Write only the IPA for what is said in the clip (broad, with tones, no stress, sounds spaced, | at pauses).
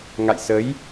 ŋ a̰˧˨ j s ə˨˦ j